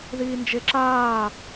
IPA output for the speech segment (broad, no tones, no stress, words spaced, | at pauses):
ðiːnd͡ʒeǁaː